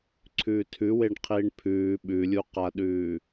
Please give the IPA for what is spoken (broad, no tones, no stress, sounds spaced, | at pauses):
ǀʰ ʉː tʰ ʉ w e ɳ qʰ iː ɳ pʰ ʉː ɓ ʉ lʲ u q a ɗ ʉː